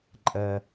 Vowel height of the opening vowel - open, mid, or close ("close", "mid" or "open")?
mid